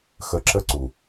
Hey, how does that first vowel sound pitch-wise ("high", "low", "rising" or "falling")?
low